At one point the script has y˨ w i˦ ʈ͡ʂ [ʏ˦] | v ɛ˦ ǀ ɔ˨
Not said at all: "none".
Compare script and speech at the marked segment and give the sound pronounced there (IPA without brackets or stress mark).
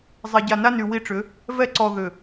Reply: ʏ˨˦